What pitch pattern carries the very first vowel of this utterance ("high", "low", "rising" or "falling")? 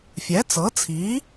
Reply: rising